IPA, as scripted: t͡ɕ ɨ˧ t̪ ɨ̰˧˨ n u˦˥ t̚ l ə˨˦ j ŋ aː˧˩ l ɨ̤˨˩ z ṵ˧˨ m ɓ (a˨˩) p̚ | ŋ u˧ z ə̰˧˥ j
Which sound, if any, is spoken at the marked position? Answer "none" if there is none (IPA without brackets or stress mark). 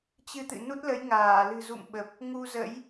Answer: ə˨˩